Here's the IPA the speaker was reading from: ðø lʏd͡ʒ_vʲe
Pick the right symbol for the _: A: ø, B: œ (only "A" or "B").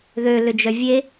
B